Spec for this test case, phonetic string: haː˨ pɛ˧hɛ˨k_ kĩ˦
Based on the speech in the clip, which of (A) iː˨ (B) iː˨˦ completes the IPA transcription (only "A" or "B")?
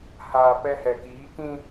B